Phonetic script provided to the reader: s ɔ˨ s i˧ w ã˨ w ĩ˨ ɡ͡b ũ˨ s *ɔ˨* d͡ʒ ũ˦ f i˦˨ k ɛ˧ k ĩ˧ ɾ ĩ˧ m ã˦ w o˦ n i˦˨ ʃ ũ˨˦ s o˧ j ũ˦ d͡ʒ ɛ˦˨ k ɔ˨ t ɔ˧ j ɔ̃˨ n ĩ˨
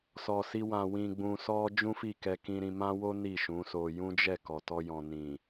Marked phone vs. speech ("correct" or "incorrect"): incorrect